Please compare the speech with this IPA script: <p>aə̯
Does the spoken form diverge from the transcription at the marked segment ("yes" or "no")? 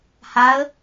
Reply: yes